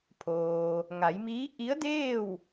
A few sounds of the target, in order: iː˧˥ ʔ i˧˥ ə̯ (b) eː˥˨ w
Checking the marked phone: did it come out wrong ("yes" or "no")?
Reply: yes